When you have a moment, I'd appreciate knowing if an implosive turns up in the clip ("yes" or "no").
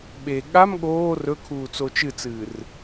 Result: yes